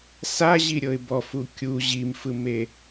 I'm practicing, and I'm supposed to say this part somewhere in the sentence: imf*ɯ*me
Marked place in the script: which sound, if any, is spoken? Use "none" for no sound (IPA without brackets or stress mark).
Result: ɯ